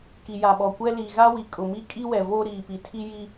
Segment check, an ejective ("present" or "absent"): present